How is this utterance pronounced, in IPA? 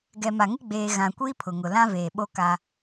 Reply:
ɡ ɛ˨ m a˨ ŋ ɪ˦ ɡ͡b eː˨ ɣ ã˨ kʷ iː˦ pʰ ʊ˨ ŋ ʊ˨ l ã˦ v eː˨ ɓ o˦ k a˦

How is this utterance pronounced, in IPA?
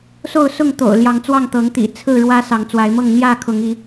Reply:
s o˥˨ ʊ̯ s ʊ˥˨ ŋ t̪ o̰˨˩ ʊ̯ l j ɑ˨˦ ŋ t͡s w ɑ˥˨ ŋ t̪ ɤ˨˦ ŋ t̪ ḭ˨˩ t͡sʰ ɹ̩˥˨ ɻ w ä˦ s ɑ˨˦ ŋ t͡s w a˨˦ ɪ̯ m ɤ˥˨ ŋ n̪ j ä˥˨ kʰ ʊ˨˦ ŋ i˨˦

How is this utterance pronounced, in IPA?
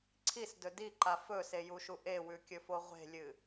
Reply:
ǀʰ i s d ɵ d i ǃ a f ɵ s e j u ʃ u ʔ e w ʉ kʲ ɵ f o ʁʷ e̤ lʲ ɨ

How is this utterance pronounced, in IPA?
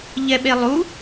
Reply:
ʎ ɛ ɓ e lˠ u

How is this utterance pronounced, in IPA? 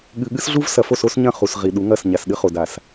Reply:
ɠ ɨ˨ ɠ ɨ˦ s ɮ u˦ v s ɐ˨ f o˦˨ s o˦ s ɲ ɐ̃˦˨ χ u˨ s ʁ i˨ ɗ u˨˦ ŋ ɐ˦˨ s ɲ a˨ s ɗ ɨ˦ χ o˨ d a˨ s

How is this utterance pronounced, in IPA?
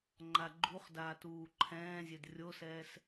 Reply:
ŋ͡ǃ a ɡ͡ǃ u χ d aː t uː ǃʰ ɛ̃ː zʲ e d rʲ o s ɛː s

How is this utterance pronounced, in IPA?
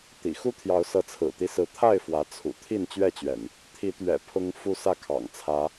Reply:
t̪ ḭ˨˩ x u˦ t̪ʰ j ɑ˨˦ ʊ̯ s ɤ˨˦ t͡sʰ ɹ̩˨˩ t̪ i˦ s ɹ̩˨˦ t̪ʰ a˥˨ ɪ̯ f w ä˨˦ t͡sʰ ṵ˨˩ t̪ʰ i˥˨ n t͡ɕ ɥ ɛ˥˨ t͡ɕ ɥ ɛ̰˨˩ n | t̪ʰ i˨˦ t̪ ɥ ɛ̰˨˩ pʰ ʊ˦ ŋ f u˦ s ä˥˨ kʰ ɑ̰˨˩ ŋ t͡sʰ ä˨˦

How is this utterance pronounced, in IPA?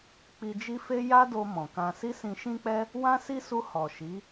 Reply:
k͡p i˧ d͡ʒ i˦ f e˦ j a˦ d o˧ m ɔ̃˨ k ã˧ s i˦ s ĩ˧ ʃ ĩ˦ k͡p ɛ˦ | w ã˦ s i˦ s u˧ h ɔ˨ ʃ i˨˦

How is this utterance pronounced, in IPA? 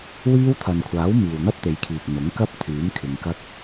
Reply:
w iː˧ w t̪ʰ ɐ˨ n kʷʰ aː˨˥ w m iː˨ w n̪ ɐ˥ p̚ t̪ e˨˧ j kʰ iː˨ k̚ n̪ ʊ˨˥ ŋ k ɐ˥ p̚ t̪ʰ yː˨˥ m kʰ ɪ˧ ŋ k ɐ˥ k̚

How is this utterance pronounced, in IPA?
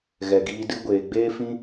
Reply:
ɣ ɛ˨ ɡ iː˧ d ɨ˦ ɡʷ eː˨ ɡ͡b eː˦ f ĩ˦

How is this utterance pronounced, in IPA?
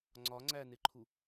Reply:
ŋ͡ǀ ɒ ŋ͡ǀ æ n e ǃʰ u

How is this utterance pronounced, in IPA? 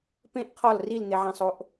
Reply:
p ẽ ʔ qʰ ɒ l r i l n̪ e ʕ æ̃ sˤ o ʔ

